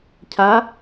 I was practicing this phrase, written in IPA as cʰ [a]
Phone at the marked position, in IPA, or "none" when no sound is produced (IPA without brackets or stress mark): a